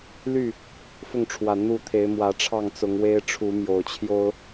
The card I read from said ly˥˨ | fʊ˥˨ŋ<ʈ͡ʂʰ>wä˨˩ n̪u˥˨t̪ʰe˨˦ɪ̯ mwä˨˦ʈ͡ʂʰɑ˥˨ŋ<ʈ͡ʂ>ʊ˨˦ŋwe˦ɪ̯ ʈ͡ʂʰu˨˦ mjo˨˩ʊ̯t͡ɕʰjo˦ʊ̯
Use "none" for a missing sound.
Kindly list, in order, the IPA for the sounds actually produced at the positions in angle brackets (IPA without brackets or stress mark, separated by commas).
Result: ʈ͡ʂʰ, t͡s